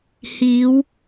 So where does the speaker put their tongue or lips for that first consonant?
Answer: throat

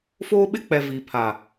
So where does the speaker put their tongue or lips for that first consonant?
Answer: lips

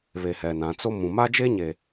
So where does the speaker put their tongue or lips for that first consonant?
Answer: lips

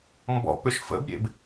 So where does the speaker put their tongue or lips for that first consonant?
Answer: lips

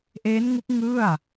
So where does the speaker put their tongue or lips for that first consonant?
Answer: throat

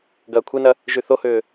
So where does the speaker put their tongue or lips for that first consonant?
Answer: velum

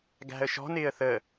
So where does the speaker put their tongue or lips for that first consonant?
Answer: velum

